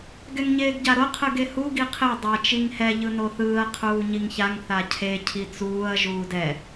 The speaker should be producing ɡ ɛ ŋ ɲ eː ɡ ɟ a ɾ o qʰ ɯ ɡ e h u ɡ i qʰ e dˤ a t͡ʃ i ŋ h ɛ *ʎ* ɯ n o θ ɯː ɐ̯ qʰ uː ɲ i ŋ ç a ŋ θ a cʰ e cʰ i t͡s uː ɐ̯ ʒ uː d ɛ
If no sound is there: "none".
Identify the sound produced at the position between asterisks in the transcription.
ʎ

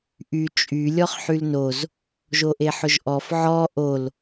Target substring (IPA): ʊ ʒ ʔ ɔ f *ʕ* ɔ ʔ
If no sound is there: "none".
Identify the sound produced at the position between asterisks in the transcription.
ʕ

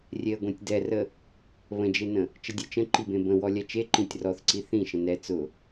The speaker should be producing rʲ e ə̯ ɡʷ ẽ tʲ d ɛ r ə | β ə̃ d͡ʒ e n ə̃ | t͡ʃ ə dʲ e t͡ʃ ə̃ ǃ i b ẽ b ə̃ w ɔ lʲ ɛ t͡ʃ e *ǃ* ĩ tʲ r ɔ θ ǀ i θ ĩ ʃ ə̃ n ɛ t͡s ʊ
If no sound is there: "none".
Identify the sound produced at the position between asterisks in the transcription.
ǃ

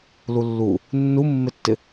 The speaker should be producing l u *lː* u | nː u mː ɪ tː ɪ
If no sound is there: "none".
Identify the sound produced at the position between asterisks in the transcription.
lː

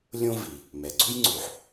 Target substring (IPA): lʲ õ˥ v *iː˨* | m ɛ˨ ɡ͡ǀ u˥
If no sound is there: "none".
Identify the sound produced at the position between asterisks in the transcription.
i˨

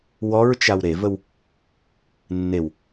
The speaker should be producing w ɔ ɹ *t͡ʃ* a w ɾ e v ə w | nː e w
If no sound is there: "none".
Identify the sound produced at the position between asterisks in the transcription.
t͡ʃ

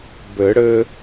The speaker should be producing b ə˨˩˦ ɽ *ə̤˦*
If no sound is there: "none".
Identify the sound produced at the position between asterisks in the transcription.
ə˦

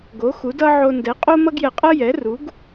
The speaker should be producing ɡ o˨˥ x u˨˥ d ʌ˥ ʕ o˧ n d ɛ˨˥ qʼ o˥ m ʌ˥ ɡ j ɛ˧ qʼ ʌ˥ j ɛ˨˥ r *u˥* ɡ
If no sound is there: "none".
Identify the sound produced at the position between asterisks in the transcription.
u˨˥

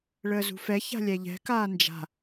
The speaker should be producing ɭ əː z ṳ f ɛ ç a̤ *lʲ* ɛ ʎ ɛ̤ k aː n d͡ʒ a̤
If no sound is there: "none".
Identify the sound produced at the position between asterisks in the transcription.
lʲ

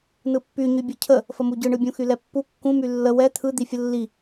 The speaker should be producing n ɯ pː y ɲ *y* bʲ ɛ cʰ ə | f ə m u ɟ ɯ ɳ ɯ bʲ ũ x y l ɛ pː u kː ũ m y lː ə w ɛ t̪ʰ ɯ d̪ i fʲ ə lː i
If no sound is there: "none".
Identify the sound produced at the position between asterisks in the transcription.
y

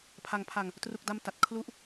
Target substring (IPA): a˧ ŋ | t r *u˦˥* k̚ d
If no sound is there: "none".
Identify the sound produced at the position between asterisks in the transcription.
u˥˩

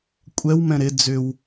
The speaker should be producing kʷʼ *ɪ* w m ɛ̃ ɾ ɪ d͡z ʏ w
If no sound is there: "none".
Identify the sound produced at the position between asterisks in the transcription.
ɛ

